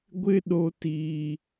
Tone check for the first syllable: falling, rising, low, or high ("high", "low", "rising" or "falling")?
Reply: high